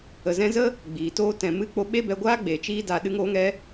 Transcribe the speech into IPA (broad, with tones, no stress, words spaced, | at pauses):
ə˨zɛ̃˧zə˦ | ɡ͡biː˨toː˦ tɛ̃˨mɨ˧ k͡po˧ ɓe˦bɛ˧ɡʷaː˦ ɡ͡be˨t͡ʃiː˦da˧ ɗɨ˧ŋoː˧ŋɛ˧